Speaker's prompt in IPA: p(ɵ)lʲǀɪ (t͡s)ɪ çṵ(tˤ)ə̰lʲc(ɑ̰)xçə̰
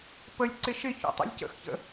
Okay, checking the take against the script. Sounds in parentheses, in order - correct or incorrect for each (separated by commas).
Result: incorrect, incorrect, correct, incorrect